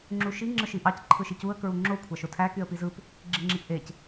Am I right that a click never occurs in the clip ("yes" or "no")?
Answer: no